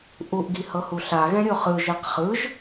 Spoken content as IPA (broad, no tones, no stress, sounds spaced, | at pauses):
ʔ u ʔ ɡ i h ɤ h u ɬ a ɣ ɛ̃ ɾʲ o χ ɯ ʒ e q χ ɯ ʒ